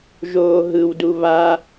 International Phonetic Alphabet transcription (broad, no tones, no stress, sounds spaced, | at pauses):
ʒ oː ɦ ɯ w d u β a